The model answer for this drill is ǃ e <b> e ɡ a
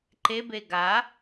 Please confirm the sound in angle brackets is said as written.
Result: yes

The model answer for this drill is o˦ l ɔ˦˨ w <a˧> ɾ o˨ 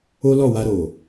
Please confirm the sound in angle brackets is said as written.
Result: yes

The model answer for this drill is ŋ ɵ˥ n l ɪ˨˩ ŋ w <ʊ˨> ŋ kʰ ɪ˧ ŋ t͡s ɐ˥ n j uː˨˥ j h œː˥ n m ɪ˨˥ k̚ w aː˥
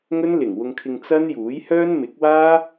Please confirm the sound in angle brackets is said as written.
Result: no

